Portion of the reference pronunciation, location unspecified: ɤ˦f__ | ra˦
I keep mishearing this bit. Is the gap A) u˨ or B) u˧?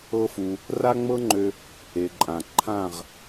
B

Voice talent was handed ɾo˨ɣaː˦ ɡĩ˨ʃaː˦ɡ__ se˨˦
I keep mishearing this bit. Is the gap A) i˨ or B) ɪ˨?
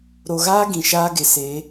B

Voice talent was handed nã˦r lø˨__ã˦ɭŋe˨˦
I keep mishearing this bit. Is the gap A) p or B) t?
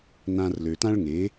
B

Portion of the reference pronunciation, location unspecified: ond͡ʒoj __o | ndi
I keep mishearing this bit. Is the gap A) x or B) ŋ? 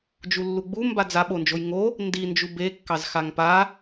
B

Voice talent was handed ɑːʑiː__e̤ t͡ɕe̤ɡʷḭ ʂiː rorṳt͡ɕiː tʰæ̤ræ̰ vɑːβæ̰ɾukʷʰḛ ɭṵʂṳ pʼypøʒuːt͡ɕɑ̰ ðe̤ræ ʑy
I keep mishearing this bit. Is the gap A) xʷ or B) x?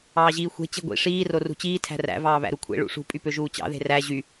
A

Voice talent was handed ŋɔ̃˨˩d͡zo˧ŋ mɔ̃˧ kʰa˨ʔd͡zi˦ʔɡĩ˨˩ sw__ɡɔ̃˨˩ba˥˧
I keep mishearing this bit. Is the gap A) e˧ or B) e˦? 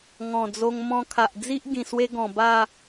B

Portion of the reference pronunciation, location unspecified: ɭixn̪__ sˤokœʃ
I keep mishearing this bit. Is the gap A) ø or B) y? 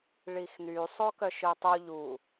B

